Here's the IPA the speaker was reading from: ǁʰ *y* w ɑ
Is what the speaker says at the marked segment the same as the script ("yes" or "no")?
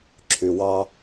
yes